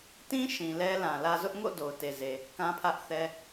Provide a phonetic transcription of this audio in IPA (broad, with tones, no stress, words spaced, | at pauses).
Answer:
tĩ˦ ʃĩ˨lɛ˦lã˨lä˦ zʊ˦ʔŋo̰˦˨ do˨ʊ̯te˨ze˨ | kã˦pʰä˦ʔθɛ˦